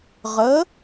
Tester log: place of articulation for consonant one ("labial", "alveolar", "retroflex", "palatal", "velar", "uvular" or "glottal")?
uvular